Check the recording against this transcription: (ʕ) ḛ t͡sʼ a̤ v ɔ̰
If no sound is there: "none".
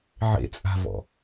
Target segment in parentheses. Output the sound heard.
ʕ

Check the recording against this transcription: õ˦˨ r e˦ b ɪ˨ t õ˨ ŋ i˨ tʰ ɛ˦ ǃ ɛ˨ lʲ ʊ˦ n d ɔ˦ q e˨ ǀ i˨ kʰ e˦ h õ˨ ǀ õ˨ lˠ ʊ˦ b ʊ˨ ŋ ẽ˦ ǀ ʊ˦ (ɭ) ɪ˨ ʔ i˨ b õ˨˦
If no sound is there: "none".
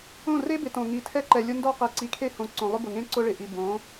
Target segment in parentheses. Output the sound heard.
ɭ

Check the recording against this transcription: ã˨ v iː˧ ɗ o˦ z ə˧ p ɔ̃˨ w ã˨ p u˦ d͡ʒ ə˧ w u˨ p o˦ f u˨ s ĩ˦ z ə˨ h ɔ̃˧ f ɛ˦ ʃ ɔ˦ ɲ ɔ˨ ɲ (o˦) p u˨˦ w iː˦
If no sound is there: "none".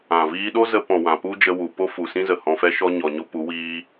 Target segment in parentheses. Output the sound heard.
o˦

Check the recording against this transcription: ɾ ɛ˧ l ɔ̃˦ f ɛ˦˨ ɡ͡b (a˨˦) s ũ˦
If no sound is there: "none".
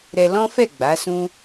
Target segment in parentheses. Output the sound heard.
a˨˦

